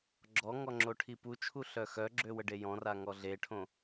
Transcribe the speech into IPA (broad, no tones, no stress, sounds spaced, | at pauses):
ɡ͡ǁ ɔ ŋ ɔ ŋ͡ǁ o ʈʰ i p u t͡ʃʰ u ɬ œ x œ ɡ͡ǁ ø w ə ɖ e j ɔ̃ r a ŋ ɔ ɮ e ʈʰ õ